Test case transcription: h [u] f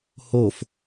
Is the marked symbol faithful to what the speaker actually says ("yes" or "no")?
no